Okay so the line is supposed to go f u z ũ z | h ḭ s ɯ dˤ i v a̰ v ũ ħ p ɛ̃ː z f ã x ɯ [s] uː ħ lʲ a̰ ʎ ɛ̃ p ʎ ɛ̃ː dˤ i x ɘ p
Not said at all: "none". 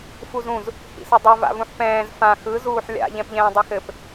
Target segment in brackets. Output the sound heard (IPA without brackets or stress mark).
z